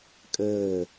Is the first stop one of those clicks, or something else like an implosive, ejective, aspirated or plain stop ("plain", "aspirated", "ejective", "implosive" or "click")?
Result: ejective